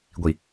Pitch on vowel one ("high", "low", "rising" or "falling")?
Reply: low